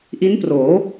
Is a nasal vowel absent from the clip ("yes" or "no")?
yes